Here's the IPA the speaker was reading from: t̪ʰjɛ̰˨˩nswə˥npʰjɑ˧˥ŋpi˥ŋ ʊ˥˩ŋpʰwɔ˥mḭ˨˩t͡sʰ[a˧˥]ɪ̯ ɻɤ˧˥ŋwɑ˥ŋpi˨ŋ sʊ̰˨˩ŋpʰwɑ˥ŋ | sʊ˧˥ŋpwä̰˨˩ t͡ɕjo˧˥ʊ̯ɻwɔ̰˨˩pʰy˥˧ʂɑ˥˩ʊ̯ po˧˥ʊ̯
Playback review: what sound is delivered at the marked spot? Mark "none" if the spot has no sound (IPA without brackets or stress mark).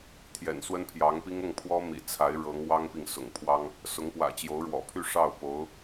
a˧˥